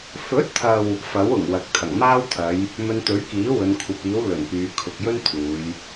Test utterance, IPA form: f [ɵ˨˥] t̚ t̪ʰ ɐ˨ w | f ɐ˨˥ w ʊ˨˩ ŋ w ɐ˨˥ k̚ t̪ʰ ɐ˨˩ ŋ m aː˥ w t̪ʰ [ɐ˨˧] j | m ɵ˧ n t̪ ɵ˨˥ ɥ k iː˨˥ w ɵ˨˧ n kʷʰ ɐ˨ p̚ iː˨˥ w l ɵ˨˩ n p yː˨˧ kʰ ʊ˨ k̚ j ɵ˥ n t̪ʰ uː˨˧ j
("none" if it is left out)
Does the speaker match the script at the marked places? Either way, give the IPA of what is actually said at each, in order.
ɵ˨˥, ɐ˨˧

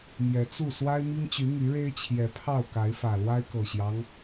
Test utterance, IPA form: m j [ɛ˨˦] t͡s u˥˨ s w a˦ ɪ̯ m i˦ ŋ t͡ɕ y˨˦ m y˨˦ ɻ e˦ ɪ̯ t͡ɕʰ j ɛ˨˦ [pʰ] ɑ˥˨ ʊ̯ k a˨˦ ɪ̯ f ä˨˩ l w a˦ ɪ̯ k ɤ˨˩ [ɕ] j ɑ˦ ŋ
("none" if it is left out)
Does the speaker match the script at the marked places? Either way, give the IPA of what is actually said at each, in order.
ɛ˨˦, pʰ, ɕ

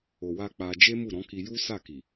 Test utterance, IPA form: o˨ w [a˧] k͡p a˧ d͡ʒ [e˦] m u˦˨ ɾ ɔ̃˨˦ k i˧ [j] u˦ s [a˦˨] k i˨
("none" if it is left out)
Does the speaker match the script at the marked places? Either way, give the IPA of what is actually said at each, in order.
a˧, e˦, j, a˦˨

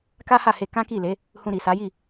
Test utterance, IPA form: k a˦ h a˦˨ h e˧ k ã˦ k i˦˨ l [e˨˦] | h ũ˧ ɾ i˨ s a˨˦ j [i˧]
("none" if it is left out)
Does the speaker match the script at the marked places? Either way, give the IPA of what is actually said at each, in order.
e˨˦, i˦˨

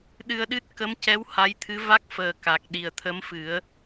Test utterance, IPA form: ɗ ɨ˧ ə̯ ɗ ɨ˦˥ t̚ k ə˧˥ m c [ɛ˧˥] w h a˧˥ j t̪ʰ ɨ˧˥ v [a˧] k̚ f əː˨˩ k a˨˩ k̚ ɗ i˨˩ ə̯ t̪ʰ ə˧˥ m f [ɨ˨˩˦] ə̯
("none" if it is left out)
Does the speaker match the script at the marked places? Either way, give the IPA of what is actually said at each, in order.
ɛ˧˥, a˦˥, ɨ˨˩˦

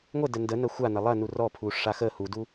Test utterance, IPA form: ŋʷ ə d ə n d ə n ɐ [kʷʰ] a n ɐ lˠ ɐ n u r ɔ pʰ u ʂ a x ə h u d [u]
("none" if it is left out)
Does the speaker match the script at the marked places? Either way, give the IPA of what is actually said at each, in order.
xʷ, u

